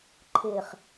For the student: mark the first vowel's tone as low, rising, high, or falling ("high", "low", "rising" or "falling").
low